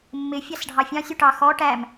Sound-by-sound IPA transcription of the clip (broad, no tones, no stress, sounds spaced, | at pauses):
mː ɪ fʲ ɑ s ɖʱ ɑ fʲ ɑ̃ sʲ u ʈ ɑ x ɔ ʈ æ m